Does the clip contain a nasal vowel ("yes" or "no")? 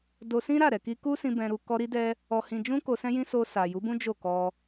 yes